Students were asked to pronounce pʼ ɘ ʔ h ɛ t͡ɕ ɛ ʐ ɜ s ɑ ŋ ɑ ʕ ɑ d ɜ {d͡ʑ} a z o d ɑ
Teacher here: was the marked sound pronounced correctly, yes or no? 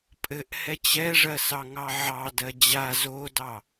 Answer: yes